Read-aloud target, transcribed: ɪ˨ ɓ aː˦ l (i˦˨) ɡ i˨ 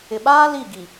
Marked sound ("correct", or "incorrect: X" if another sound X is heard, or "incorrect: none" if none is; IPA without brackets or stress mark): correct